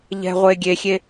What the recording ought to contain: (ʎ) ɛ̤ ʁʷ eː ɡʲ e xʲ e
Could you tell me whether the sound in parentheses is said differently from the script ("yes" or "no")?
no